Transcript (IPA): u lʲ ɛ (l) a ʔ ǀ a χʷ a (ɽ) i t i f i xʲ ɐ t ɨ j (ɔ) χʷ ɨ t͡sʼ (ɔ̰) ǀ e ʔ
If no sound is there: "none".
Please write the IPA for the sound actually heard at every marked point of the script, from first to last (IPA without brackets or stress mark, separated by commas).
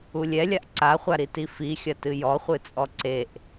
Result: lʲ, ɾ, ɔ, ɔ